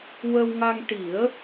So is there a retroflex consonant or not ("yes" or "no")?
yes